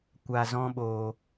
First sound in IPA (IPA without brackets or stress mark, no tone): kʷ